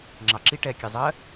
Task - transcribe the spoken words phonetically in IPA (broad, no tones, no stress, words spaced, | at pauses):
ŋ͡ǁɑ ǁi ʈɛkʲe zˤɜ